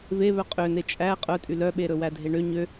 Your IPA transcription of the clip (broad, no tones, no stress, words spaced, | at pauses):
ve βœqʼøne t͡ʃʼæ qʼœtʼy lœɓeɾɵ wædʱeɳø ɲø